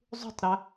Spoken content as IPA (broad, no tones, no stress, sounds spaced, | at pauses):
zˤ ṳ tˤ ɾ a